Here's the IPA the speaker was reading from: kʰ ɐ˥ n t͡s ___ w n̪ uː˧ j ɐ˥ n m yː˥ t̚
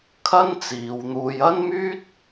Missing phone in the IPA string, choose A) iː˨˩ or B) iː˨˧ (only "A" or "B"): B